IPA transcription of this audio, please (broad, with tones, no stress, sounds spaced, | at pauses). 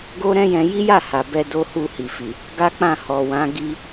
ɡ o˦ ɾ ɛ̃˦ j ɛ̃˧ j i˦ j a˦˨ h a˨ b ɛ˧ d o˦ h u˦˨ h i˨ f i˨ | ɡ a˦ k͡p ã˦˨ h ɔ˨ w ã˨˦ ɡ i˦